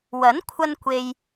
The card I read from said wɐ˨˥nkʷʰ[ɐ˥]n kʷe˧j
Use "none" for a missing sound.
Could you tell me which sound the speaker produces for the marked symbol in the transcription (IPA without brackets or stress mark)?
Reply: ɐ˧